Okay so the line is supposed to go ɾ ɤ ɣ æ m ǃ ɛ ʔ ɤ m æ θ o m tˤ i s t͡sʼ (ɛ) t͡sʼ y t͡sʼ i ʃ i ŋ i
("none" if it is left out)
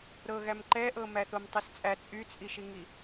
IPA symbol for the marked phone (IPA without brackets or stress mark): æ